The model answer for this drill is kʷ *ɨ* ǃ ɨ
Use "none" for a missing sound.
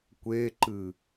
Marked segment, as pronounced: e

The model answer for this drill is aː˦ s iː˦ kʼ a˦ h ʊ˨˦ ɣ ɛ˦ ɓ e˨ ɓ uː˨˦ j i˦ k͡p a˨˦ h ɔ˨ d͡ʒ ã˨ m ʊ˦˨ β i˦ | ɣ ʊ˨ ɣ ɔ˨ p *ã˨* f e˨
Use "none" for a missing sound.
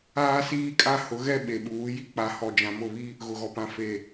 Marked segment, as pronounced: ã˨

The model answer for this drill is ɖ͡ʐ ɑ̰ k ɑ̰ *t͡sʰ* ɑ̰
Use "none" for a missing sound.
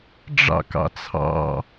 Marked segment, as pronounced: t͡sʰ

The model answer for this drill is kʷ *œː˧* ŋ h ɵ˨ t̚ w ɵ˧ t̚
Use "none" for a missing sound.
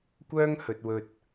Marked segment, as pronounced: œː˥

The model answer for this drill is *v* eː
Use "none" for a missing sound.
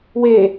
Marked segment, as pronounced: w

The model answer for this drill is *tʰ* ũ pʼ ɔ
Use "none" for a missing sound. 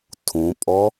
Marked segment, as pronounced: tʰ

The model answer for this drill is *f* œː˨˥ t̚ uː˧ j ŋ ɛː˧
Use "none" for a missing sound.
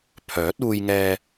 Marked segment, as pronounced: pʰ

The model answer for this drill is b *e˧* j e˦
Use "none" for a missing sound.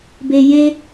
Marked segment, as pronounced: e˧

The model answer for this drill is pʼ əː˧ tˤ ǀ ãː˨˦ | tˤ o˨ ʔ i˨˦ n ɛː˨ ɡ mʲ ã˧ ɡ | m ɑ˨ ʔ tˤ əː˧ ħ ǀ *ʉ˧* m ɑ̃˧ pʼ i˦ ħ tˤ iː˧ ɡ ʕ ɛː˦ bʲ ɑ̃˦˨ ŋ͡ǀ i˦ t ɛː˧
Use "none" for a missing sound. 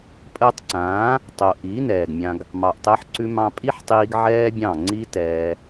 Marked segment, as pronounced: ʉ˧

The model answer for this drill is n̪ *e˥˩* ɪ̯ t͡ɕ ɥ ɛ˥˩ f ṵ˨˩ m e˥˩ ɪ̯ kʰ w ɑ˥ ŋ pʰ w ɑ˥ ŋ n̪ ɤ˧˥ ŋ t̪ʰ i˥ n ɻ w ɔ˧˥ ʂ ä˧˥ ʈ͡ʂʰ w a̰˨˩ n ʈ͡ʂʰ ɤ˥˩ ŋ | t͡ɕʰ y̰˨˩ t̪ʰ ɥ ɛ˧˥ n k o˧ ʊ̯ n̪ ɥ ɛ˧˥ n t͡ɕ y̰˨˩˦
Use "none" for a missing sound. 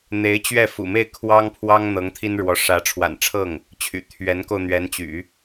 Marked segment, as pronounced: e˧˥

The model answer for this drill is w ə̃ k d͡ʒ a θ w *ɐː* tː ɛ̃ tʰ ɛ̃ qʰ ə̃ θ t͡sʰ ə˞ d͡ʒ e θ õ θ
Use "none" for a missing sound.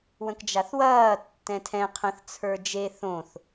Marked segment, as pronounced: ɐː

